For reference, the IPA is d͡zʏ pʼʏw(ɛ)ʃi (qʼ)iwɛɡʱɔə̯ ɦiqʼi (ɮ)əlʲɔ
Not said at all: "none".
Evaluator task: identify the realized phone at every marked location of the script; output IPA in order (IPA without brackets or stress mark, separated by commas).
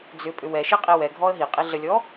ɛ, qʼ, ɮ